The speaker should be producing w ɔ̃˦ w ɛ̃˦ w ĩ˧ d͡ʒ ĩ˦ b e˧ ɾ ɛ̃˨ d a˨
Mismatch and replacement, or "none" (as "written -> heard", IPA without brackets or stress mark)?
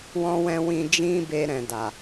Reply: none